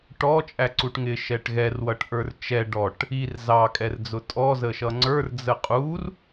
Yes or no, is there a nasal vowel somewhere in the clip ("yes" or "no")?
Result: no